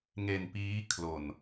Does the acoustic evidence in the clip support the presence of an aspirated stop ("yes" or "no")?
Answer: yes